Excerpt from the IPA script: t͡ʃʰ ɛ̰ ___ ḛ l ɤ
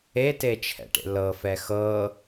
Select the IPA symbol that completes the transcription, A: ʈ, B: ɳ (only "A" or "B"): A